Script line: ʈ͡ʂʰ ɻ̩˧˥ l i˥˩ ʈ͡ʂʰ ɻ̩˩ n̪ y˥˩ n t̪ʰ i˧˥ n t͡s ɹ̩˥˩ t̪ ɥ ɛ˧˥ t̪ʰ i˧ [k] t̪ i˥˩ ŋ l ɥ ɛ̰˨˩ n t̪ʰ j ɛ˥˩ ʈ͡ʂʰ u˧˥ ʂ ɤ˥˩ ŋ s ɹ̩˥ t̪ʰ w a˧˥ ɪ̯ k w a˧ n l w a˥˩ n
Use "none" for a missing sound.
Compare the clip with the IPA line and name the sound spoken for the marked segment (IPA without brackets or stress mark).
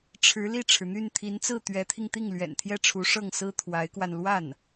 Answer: ŋ